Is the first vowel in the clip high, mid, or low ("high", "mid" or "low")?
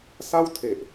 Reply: low